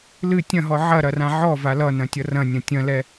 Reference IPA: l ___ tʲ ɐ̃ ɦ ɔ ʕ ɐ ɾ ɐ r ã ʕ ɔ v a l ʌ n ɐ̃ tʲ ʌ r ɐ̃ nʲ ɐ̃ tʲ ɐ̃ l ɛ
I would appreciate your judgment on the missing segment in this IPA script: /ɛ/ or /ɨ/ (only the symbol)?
ɨ